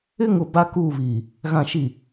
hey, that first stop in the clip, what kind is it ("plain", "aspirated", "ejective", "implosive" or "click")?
plain